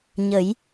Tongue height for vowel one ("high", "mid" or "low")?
mid